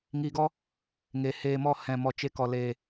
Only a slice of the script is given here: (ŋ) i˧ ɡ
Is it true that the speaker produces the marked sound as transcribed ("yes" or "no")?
yes